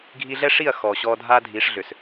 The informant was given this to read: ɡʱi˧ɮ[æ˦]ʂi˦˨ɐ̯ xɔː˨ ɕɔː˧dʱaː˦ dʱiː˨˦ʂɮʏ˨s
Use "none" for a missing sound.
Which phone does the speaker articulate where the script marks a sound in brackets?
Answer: ɛ˦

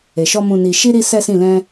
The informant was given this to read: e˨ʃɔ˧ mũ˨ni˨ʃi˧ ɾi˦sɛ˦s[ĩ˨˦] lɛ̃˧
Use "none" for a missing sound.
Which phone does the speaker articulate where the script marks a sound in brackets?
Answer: ĩ˦˨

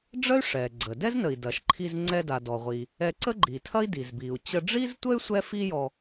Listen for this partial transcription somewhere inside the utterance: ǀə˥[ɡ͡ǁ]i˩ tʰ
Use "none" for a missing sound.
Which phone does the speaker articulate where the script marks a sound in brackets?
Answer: ɡ͡ǃ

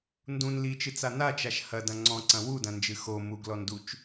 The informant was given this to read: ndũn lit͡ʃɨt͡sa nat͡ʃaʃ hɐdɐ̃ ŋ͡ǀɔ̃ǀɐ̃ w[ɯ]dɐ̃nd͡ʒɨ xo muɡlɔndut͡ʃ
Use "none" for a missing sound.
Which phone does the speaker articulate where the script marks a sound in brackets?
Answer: u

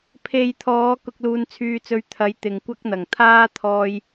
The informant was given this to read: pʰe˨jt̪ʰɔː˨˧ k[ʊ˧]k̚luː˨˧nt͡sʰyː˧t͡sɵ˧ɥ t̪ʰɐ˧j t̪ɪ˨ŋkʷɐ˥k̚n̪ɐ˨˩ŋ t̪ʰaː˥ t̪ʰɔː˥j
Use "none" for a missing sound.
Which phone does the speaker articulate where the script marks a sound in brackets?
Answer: ʊ˧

